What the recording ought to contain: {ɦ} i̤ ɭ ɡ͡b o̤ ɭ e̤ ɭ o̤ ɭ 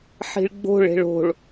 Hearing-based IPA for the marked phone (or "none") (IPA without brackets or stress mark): ħ